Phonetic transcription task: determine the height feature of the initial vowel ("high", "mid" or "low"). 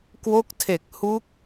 mid